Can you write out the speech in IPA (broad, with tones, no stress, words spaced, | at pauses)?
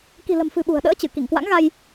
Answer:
ki̤˨˩lə̤˨˩mfɨ̤˨˩ ɓṳ˨˩ə̯ɗə̰ː˧˥t͡ɕɨ˧˩ ki˧˩ŋkwa̰˧˥ŋɣa˧j